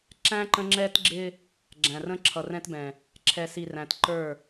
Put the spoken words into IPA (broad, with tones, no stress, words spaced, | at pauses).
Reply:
ǁæ̃˦ ǃə̃˦ ŋ͡ǁɛ˦tɡ͡ǁɪ˦ | ɡ͡ǁæ̃˨rə̃˦ ǁʰʌ˨rɛ̃˦tbɛ̃˨ | ǁʰɛ˨si˨ ræ̃˨tǃə˞˦˨